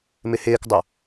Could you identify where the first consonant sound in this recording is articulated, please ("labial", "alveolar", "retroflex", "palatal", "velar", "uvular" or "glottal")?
labial